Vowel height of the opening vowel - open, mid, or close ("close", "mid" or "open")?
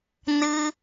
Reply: close